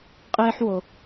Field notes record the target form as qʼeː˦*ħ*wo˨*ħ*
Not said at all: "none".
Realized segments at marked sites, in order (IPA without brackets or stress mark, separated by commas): ħ, none